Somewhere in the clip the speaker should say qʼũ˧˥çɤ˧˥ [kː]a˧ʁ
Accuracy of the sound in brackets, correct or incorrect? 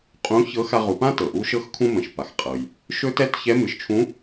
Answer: incorrect